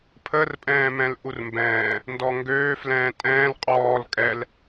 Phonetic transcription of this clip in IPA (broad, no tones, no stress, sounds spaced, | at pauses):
pʰ ə r pʼ ɛ̃ː m ɛ̃ l ʔ u r m b ɛ̃ː | n d ɔ ŋ ɡ øː f l ɛ̃ː tʼ ɛ̃ː l qʼ ɔː l kʼ ɛ l